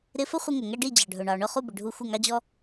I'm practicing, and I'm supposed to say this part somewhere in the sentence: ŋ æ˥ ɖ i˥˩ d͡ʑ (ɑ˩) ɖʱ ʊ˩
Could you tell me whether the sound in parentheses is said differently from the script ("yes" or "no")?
no